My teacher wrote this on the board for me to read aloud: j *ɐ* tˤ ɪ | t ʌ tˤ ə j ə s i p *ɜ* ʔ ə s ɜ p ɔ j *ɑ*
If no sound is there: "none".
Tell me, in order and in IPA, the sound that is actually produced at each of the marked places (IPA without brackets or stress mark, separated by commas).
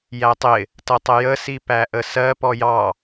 æ, æ, ɑ